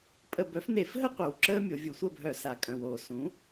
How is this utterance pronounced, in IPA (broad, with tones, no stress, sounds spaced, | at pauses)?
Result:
pʼ ə˧˩˧ b œ˩˥ f n e˧˩˧ f ɦ ə˥ qʷ œ˩ w ǁ əː˥ mʲ o˩˧ vʲ u˧˩˧ sʷ əː˥˨ b ɦ œ˧˩˧ s a˩ kʼ œ̃˩ w oː˩ s ũ˩˥